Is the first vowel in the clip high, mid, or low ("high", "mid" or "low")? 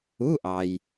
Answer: high